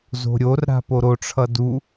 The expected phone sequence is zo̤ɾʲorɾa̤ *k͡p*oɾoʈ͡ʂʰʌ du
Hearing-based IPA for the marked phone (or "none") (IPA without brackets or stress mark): p